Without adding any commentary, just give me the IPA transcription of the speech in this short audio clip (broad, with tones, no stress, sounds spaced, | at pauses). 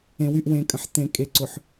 ẽ˨ w y˦˨ ʔ w ẽ˨ kʼ ə̃˨ ħ t ẽ˨ kʼ e˨ ǀ ʊ˨ ħ